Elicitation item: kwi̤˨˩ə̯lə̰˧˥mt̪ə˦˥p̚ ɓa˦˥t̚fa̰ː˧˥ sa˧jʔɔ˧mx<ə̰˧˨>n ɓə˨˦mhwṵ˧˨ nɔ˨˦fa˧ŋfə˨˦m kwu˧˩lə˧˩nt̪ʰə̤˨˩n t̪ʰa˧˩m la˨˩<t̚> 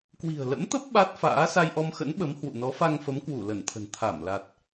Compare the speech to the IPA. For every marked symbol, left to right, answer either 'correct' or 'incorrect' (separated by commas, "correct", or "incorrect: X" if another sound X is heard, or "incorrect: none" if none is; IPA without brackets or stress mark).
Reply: incorrect: ə̰˧˥, correct